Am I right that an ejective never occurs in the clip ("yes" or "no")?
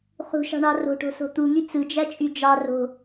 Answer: no